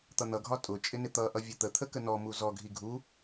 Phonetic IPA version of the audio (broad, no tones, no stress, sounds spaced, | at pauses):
t̪ ʌ n̪ ʌ ɡʱ ɒ tʼ ʊ t͡ʃʼ ɪ n ɪ t̪ ʌ ʔ ʌ vʲ ə t̪ ə t̪ʰ ə k ə n ɔ m u z ɔ ɡʱ i ɡʱ u